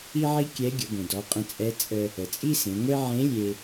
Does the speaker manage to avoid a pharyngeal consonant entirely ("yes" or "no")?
no